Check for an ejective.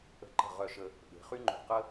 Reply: absent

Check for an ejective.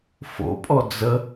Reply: present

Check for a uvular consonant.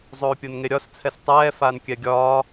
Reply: absent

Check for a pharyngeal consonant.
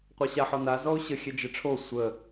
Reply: present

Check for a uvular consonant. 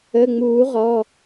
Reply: present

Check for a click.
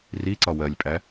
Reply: present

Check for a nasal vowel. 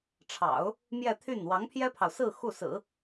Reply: absent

